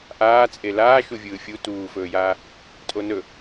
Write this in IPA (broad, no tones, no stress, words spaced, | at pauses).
ʔaːt͡sʼe laːʃuvʲɯː fʲu tuːfɵːjaː | tʼonɵ